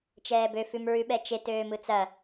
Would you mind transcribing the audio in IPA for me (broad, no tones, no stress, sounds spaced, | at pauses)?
t͡ʃ ɛː b ø f ʉ m ɹ ʉ ɓ ɛ t͡ʃ e t øː m ɯ t͡s ɐ